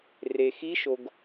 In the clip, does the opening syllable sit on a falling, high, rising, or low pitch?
low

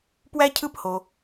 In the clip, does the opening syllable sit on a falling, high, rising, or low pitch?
high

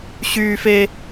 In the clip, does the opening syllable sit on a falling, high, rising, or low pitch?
high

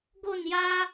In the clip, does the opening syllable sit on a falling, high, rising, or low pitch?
falling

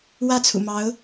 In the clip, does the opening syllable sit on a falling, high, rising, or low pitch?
falling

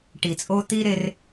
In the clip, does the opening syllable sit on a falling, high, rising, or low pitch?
low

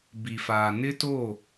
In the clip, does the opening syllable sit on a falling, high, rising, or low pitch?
low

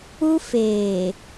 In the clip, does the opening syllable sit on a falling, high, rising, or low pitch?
high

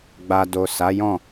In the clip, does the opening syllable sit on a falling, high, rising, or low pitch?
low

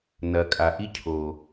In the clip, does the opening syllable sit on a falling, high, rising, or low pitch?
low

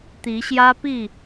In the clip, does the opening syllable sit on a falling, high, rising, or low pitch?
rising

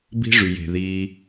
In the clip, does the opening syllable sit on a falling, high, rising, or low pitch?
high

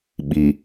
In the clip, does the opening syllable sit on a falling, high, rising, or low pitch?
low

